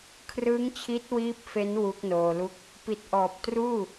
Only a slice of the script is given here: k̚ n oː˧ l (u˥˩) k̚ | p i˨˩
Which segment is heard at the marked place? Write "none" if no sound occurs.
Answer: u˥˩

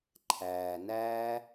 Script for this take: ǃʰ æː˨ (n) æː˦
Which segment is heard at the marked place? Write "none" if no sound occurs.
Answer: n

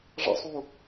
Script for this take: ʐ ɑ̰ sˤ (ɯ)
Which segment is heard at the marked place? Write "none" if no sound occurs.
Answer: u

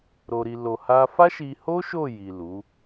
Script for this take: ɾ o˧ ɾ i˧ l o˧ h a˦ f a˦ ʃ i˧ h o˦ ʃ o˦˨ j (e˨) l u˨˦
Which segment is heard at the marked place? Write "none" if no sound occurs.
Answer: i˨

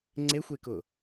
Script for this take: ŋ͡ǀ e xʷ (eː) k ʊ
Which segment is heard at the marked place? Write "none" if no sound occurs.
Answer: e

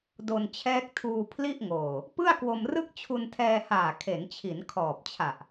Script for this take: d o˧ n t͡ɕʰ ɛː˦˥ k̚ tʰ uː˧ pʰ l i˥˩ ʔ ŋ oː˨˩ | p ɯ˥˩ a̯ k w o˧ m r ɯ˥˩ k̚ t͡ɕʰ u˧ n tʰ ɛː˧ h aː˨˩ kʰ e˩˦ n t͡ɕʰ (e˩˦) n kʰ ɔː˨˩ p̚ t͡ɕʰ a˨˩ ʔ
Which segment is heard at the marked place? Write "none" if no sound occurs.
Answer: i˩˦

